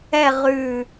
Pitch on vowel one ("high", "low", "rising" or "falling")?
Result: falling